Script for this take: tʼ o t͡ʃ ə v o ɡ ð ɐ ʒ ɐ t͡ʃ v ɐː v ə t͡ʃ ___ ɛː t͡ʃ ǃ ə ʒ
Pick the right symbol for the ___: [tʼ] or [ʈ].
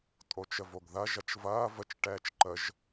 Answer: ʈ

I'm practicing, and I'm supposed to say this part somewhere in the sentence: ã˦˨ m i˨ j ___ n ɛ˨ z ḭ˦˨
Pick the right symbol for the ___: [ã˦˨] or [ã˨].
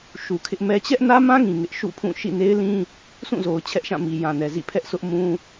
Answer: ã˨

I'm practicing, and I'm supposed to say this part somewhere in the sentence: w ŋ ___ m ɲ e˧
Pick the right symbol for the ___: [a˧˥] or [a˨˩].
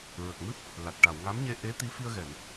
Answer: a˧˥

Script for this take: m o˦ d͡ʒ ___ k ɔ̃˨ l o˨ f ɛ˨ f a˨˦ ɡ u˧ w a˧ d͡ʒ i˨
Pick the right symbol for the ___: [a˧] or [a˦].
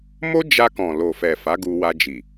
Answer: a˧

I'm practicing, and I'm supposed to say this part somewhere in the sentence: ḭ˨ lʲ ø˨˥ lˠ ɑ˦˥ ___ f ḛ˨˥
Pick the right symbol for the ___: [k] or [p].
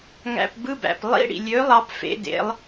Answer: p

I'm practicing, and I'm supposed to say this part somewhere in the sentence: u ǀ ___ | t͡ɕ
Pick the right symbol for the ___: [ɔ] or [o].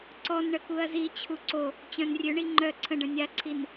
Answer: o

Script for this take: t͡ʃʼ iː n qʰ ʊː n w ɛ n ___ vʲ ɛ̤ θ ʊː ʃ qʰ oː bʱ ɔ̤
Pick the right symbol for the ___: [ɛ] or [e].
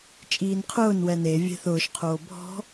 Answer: e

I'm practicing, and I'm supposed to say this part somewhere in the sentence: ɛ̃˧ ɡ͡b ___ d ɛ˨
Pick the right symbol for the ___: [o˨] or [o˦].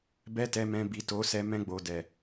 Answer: o˨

